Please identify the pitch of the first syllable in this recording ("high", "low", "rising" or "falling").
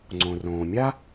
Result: low